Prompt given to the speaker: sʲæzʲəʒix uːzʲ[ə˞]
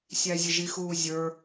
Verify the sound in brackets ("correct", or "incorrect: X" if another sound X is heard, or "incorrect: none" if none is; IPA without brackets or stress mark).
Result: correct